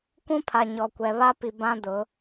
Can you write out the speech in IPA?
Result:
kʷũ˦pʰa˨ ɲɔ˨kʷɛ˨ βa˦pi˨ bã˦ dʊ˨˦

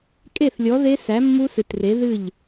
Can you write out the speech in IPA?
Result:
kʼe˥˩θlʲɔ˨˥ðe˦˥ sæ˨˥mːu˦˥sɨ˨˩tre˨˥ ðɨ˥˩ʎ

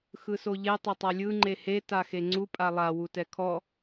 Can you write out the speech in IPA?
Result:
xɯsoʎe tˤetˤalʲɯ ŋ͡ǃehe taxeŋ͡ǀu pʼalˠa wutɛkʰɔ

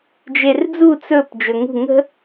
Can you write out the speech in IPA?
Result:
d͡ʒerd͡zu t͡sɵp d͡ʒɵŋṳ ŋə̤

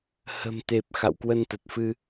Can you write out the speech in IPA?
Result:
hə̤˨˩mt̪e˨˩p̚ xa̰˧˨wkwə˧nt̪ə˨˩t̚fɨ˧

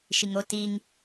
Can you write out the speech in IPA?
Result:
ʃiŋo tiŋ

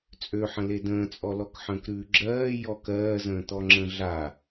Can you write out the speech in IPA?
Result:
t͡sʼøħə̃ ledə̃ːt͡sʼɔlɔk ħə̃ːkɾʉːɡ͡ǁɜː jɔk ɜːzə̃ːt̪ɔ ŋ͡ǁə̃ɮa

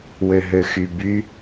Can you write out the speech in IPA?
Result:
wøɦøxyby

